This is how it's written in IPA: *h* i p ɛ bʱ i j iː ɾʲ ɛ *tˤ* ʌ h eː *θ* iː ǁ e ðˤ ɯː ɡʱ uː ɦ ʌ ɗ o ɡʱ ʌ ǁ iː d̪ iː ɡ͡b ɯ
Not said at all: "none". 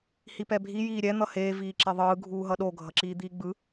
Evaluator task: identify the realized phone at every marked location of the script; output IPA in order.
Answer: h, n̪, v

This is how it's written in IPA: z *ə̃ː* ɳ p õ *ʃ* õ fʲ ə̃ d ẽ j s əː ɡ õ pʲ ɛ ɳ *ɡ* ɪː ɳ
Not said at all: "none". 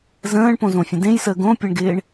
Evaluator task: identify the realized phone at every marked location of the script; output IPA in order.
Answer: ə̃ː, z, ɡ

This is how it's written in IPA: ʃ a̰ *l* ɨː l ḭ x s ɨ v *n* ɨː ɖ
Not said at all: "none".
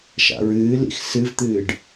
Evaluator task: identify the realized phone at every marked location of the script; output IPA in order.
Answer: ɹ, t̪

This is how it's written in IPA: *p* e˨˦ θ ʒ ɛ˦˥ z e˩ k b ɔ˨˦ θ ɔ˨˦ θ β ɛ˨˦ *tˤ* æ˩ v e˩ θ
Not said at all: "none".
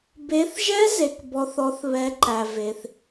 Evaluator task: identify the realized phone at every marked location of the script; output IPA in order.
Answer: b, ǃ

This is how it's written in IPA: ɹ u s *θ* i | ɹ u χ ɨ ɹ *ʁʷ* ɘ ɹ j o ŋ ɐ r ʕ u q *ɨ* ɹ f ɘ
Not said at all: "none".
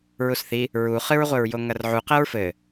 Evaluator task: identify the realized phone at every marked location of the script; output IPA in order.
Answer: θ, ʁʷ, ɛ

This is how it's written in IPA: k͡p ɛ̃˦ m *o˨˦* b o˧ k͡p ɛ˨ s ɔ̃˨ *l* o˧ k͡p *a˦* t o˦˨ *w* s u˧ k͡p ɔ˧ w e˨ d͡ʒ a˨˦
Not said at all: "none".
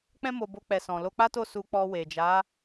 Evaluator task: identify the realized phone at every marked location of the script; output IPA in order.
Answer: o˧, l, a˦, none

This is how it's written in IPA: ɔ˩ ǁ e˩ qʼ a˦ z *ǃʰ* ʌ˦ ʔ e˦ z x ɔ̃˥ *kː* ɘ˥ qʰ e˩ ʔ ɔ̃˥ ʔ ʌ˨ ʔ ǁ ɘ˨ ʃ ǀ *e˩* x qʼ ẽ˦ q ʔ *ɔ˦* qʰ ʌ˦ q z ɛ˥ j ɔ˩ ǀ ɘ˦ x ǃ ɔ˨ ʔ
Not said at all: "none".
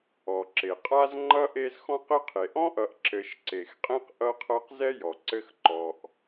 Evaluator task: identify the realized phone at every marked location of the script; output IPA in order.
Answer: ŋ͡ǃ, q, e˩, ʌ˦

